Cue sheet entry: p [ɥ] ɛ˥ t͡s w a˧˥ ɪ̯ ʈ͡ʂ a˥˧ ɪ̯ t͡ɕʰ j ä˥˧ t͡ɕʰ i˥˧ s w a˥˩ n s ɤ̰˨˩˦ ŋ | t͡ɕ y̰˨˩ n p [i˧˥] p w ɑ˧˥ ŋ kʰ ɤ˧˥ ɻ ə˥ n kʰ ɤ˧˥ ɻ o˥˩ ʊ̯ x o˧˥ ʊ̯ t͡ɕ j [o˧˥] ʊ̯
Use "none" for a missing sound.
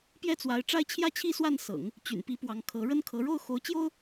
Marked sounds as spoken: j, i˧˥, o˥

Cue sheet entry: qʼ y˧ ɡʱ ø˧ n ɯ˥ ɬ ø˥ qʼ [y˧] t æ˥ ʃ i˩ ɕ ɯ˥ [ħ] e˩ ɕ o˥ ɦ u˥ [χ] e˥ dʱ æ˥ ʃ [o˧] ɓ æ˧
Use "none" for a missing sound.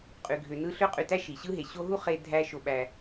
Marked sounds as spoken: y˧, ɦ, χ, o˧

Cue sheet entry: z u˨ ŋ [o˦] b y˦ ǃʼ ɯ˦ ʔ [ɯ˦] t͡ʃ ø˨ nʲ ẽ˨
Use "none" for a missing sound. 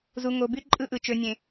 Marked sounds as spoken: o˨, ɯ˨

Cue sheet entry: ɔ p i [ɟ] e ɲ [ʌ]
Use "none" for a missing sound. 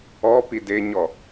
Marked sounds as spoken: d, ɔ

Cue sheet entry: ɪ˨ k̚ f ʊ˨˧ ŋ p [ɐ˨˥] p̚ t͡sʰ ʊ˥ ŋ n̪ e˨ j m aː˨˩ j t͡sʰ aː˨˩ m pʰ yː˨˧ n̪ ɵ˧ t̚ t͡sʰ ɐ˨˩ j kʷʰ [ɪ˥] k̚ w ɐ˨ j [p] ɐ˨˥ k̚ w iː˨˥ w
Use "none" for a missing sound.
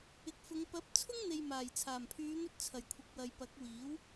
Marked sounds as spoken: ɐ˨˥, ɪ˨, p

